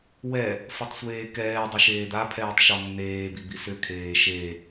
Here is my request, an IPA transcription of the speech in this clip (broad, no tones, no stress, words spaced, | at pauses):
wɛ | fɔtˤsʷeːkɛː dˤəʃeːd̪a pʰɛːtˤʃɔnːeː bibisʏ kʰeːʃe